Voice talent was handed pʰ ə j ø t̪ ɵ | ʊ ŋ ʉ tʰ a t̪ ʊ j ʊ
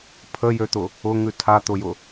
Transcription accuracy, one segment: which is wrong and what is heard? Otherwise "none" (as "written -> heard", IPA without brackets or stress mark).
ɵ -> ʊ